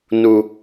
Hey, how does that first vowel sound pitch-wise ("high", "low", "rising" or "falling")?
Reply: high